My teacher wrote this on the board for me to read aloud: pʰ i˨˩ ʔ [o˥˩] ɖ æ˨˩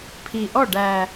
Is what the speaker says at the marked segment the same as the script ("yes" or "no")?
no